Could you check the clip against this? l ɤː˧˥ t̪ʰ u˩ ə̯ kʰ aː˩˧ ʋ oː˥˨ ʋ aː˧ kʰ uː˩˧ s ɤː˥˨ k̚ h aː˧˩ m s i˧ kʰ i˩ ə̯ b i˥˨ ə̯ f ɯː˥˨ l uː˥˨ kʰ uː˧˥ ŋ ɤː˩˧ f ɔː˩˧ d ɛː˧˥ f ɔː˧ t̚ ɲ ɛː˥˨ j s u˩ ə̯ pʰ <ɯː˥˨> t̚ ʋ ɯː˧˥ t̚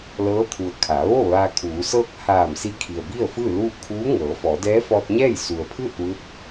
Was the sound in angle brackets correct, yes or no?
yes